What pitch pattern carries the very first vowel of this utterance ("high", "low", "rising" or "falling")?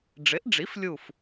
rising